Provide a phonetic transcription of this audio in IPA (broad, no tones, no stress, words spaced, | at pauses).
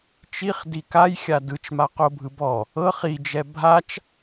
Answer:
t͡ʃiχ dikajxʲa dɯt͡ʃma qobʱɯ bɔ | ɤχ id͡ʒɛ bʱat͡ʃ